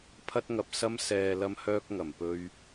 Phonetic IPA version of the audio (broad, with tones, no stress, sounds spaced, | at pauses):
pʰ ɐ˥ t̚ ŋ ɐ˧ p̚ s ɐ˧ m s ɛː˨ l ɐ˧ m h œː˧ k̚ ŋ ɐ˨˩ m p ɵ˧ ɥ